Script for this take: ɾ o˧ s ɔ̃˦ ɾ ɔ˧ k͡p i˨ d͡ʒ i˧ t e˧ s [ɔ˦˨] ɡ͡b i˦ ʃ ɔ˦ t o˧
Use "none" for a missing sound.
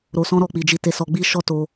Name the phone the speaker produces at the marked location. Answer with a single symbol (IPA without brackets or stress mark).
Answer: ɔ˧